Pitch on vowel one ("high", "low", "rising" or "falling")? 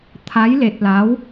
rising